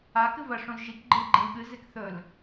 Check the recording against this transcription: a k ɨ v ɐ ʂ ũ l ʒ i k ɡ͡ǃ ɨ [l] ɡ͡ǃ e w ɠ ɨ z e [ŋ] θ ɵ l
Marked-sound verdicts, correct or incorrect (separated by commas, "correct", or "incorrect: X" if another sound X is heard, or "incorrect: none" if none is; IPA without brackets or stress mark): correct, incorrect: k